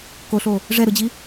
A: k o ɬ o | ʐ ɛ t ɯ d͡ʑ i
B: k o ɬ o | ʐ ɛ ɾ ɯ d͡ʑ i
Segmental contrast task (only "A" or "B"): B